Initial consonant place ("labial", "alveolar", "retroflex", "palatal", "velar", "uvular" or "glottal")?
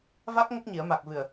labial